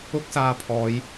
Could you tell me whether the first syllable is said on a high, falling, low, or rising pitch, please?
high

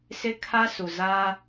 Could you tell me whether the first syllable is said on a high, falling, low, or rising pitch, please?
high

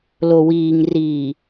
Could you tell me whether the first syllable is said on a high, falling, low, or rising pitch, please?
low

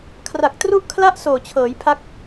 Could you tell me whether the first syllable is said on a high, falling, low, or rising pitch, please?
low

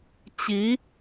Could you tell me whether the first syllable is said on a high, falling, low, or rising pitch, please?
rising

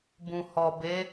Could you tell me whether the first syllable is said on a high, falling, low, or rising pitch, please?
low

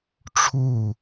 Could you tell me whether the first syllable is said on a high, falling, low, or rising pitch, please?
falling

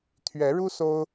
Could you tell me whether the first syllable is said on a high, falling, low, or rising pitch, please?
rising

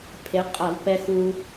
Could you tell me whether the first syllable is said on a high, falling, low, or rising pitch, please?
rising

